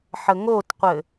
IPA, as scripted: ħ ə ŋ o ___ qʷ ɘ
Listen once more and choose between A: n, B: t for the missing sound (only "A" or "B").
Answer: B